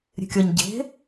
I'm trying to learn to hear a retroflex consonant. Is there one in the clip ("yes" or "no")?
no